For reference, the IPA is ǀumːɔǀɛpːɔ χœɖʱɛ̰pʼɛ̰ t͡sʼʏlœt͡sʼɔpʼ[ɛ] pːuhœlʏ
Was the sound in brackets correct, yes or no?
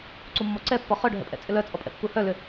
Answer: no